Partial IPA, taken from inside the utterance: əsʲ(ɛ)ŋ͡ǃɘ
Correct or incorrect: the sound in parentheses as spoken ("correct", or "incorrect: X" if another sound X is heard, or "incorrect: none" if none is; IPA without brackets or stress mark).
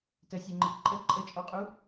correct